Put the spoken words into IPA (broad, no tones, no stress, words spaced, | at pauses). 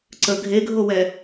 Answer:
ǀə ɡʱeɡʱowɛ